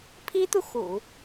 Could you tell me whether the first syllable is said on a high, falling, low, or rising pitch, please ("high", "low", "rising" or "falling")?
high